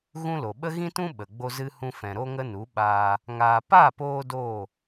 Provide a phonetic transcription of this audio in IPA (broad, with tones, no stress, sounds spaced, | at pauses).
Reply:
ɣ ũ˦ l o˨ ɓ ə˦ ɣ ĩ˦ t ũ˦ ɓ ə˨ ɡ͡b o˧ z ɨ˧ h ũ˧ f ɛ̃˨ ɾ o˦ ŋ ə˦ n u˨˦ ɓ aː˧ | ŋ aː˧ p a˦˨ p oː˧ d oː˦˨